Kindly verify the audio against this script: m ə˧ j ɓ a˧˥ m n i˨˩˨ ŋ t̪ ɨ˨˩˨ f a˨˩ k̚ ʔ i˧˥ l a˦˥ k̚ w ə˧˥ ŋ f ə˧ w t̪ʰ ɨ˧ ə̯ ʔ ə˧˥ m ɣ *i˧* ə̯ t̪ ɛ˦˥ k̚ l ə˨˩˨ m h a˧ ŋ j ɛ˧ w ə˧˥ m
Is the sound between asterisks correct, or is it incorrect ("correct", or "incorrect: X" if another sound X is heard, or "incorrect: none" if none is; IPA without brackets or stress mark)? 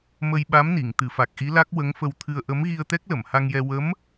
correct